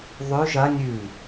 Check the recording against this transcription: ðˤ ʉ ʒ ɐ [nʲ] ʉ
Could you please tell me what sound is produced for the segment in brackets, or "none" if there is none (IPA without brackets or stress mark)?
nʲ